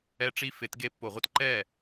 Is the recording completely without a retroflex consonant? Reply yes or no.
no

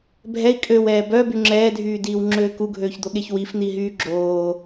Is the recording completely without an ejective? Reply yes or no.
no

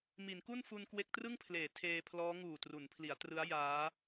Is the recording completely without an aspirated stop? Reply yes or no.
no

